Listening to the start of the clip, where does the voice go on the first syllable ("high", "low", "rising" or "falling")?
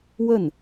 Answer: falling